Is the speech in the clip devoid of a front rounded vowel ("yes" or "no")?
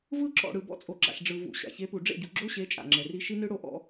yes